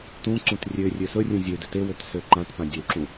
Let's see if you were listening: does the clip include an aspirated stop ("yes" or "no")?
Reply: no